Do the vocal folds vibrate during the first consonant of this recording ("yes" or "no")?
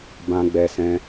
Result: yes